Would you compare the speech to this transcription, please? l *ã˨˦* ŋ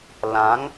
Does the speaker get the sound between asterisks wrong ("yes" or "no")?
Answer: no